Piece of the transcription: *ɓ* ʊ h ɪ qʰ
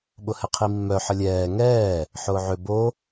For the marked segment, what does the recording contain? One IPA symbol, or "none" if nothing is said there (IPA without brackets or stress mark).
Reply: ɓ